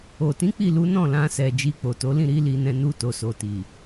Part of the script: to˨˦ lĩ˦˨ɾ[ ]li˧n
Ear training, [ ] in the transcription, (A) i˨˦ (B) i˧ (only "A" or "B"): A